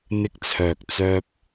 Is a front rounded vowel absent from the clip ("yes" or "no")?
no